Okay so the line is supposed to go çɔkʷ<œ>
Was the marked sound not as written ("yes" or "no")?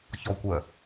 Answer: no